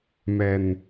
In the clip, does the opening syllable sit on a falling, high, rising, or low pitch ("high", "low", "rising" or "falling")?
low